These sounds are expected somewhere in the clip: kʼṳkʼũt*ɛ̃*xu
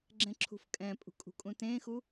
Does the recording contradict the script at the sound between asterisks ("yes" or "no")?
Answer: yes